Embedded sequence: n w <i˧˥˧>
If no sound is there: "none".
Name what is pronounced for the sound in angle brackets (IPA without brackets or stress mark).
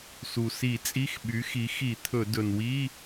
i˧˥˧